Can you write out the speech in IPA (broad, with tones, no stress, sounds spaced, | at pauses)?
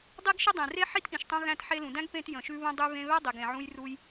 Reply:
dˤ i˥ ɡ ʃ ə˥ dˤ ẽ˩ r e˥ ħ i˥ t ʔ ĩ˩ ʃ tˤ ũ˧ ɣ æ̃˧ t ħ e˧ l ũ˩ d æ̃˥ ɡ p ẽ˧ t j ə̃˩ ʃ ʉ˧ β ũ˧ dˤ y˧ β ẽ˧ β æ˥ dˤ i˩ ɡ ẽ˩ ʕ ũ˧ j r u˧ j